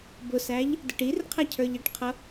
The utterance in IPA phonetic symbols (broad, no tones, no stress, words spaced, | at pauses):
bʊsæʎ | dəʈirqʰæ cʰə˞ʎɪʈqʰʌ